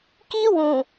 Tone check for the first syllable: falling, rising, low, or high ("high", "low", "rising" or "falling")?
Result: high